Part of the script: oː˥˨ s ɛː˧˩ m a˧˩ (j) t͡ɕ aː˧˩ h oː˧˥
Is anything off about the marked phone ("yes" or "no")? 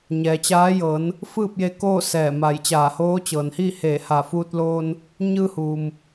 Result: no